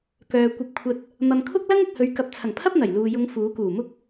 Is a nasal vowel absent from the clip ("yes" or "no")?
yes